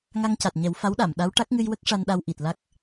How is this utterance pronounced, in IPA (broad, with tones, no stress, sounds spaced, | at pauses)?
ŋ a˧ ŋ c a˨˩ t̚ ɲ ɛ˨˩˦ w f a˧˥ w ɗ a˨˩˨ m ɗ a˧˥ w ʈ a˦˥ k̚ ŋ ɨ˧ j w ə˦˥ k̚ ʂ a˧ n ɗ a˧ w ʔ i˨˩ t̚ l a˦˥ k̚